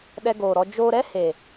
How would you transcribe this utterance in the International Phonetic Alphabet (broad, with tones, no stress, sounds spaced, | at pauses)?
ɗ ɛ˧ ɡ oː˨ ɾ ɔ˧ d͡ʒ oː˧ ɾ ɛ˦ h e˨